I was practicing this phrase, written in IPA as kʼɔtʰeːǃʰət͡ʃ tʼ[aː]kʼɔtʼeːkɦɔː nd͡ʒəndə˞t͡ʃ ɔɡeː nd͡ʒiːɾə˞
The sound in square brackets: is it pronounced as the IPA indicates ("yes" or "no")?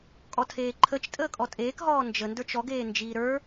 no